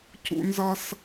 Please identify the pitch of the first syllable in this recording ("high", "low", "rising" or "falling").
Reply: high